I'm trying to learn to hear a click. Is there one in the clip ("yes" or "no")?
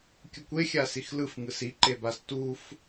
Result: yes